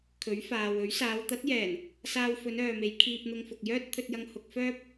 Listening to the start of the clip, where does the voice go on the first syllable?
rising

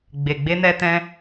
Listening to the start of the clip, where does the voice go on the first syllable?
low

